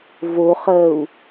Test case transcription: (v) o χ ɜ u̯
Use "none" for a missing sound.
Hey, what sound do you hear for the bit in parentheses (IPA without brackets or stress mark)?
v